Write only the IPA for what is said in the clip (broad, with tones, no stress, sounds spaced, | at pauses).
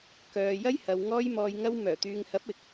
k œː˨ j ɐ˥ j h ɐ˨ w ŋ ɔː˧ j m ɔː˨ j ŋ ɐ˧ w m œː˨˩ t̪ yː˨ ŋ h ɐ˨˥ p̚ ɪ˨ k̚